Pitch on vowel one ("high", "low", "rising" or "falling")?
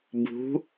rising